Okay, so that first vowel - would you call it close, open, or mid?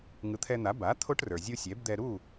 close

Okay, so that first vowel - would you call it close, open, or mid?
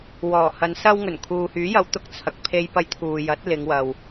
mid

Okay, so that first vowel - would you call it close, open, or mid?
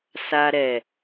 open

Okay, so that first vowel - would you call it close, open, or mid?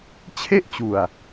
mid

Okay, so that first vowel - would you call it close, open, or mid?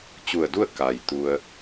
close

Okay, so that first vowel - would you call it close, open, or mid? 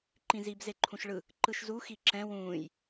close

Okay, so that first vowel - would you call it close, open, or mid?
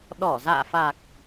mid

